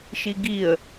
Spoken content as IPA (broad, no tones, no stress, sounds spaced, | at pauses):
ʃ i ɡ i ə̯